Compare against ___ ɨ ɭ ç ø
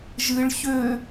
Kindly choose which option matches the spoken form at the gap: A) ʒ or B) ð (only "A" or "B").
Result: A